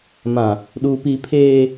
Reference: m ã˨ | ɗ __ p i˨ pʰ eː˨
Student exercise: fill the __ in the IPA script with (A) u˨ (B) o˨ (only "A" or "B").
A